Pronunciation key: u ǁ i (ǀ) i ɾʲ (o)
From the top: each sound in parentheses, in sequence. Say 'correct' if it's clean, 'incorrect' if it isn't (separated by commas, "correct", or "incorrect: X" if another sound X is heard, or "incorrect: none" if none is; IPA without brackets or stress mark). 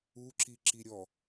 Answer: incorrect: ǁ, incorrect: ɔ